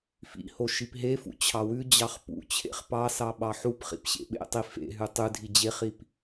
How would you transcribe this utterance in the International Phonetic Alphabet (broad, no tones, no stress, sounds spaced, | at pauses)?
f ḭ h o ʃ i p ɦ e f ṵ t͡ɕʰ ɑ w ʉ d͡ʑ ɑ χ p ṵ t͡ɕʰ ḛ χ p ɑ s ɑ ɓ ɑ ħ u p χ ḭ p ɕ ḛ ɓ ḛ tˤ i f ḛ ɦ ʉ tˤ ʉ dʱ i d͡ʑ e χ i p